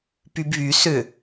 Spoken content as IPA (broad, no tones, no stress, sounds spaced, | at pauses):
p y b β y s ʏ